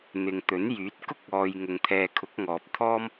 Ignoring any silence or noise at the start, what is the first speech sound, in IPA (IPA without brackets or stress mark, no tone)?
n̪